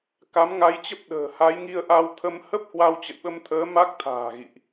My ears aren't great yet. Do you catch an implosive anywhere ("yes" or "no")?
yes